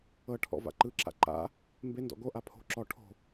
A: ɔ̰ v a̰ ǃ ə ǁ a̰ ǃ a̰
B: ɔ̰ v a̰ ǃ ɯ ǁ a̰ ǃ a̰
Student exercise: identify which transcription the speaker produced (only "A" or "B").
B